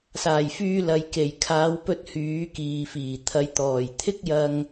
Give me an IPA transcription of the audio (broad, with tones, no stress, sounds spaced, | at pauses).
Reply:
s aː˨˩ j f yː˧ l ɐ˨ j k e˨˩ j kʰ aː˨˧ w p ɵ˧ t̚ h yː˨˥ k iː˨ f iː˨˩ t̪ʰ ɐ˨˧ j t̪ ɔː˨˩ j t̪ʰ ɪ˥ k̚ j ɐ˧ ŋ